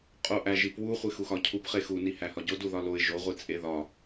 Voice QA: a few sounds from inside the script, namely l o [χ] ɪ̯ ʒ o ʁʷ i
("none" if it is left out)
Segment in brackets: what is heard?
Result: none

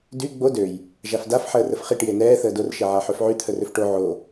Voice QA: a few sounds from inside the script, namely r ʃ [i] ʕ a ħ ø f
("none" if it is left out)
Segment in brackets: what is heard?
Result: e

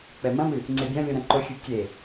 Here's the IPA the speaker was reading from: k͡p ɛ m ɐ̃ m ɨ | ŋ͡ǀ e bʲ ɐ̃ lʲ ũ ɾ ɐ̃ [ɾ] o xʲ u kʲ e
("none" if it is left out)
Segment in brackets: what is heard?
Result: ǃ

